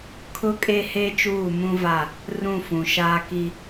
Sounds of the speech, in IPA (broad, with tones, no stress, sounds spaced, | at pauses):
kʰ ʊ˦ kʼ e˦ h e˦ t͡ʃ uː˦˨ m ũ˦ v a˦˨ | r ũ˦˨ f ũ˨ ʃ aː˦ k i˦